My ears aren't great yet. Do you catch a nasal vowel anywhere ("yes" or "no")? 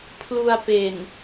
no